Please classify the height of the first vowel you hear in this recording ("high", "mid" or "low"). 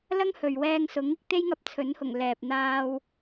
low